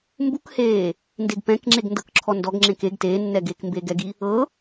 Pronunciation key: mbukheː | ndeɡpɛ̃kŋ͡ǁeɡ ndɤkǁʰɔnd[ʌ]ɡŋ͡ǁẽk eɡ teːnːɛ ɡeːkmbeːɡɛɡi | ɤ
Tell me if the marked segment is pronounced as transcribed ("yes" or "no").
no